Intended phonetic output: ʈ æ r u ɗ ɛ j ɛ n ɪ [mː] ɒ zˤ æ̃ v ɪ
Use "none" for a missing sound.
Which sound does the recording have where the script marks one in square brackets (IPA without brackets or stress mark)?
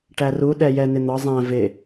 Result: n̪